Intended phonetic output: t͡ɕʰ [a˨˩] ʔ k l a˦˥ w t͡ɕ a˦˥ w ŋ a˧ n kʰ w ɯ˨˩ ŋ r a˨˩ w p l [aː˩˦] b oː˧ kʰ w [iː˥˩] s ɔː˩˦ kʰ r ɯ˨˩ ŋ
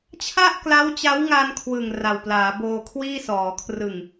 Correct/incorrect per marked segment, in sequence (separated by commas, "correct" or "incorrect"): incorrect, correct, correct